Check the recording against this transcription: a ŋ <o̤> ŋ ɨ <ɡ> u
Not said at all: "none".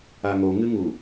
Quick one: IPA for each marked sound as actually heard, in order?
o, ŋ

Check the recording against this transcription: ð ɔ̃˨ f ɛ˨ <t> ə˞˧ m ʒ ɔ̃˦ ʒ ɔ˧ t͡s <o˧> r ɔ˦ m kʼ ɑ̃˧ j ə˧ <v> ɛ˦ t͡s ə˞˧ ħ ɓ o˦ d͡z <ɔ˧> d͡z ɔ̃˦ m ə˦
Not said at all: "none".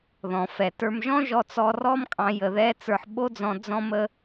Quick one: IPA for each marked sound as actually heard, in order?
t, ɔ˧, ð, ɔ̃˧

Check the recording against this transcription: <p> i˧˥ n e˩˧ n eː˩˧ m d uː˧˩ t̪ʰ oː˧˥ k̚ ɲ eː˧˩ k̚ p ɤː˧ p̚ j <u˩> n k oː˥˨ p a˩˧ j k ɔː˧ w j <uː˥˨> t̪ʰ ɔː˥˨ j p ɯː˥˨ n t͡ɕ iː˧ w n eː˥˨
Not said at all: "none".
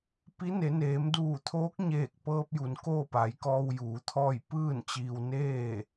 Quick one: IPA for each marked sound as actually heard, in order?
p, u˩, uː˩˧

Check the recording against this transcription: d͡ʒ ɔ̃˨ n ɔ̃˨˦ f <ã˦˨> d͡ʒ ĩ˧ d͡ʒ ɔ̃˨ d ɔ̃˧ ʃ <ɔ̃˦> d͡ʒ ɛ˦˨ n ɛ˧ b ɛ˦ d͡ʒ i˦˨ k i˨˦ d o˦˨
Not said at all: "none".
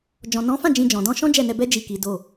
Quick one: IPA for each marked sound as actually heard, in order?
ã˦˨, ɔ̃˦

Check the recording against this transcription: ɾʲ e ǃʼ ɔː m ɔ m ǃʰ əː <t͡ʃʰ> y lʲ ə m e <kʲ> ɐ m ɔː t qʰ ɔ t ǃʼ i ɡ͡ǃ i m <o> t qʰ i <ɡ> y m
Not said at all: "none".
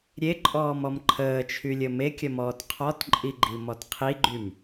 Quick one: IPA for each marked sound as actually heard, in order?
t͡ʃʰ, kʲ, ɔ, ɡ͡ǃ

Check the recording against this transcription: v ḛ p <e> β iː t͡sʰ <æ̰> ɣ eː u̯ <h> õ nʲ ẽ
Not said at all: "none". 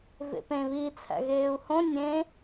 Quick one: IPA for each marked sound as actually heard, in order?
ẽ, æ̰, h

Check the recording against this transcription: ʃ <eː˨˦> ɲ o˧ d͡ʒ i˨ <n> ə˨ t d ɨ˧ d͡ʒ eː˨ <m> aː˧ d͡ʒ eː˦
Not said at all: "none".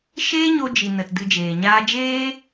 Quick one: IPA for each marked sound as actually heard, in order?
eː˦, n, ɲ

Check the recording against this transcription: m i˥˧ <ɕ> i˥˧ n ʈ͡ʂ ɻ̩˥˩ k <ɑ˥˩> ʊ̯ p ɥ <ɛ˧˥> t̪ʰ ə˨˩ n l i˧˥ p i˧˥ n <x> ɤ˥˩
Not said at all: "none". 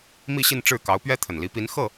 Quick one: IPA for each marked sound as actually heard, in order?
ɕ, ɑ˧˥, ɛ˥, x

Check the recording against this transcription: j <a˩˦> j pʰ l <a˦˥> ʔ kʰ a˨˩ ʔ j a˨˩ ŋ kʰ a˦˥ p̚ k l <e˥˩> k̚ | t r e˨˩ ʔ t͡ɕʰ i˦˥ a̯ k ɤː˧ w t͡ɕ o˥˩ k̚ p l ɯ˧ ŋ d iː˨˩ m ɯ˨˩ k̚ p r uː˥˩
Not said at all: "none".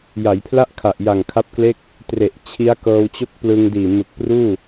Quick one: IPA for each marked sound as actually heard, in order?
a˩˦, a˥˩, e˥˩

